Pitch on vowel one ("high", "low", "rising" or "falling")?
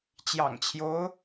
low